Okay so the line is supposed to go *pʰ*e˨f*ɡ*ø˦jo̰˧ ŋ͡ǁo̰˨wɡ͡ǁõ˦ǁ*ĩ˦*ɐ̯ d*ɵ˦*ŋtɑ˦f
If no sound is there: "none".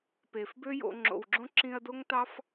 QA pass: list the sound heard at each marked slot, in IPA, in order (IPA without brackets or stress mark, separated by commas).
p, b, ĩ˧, o˦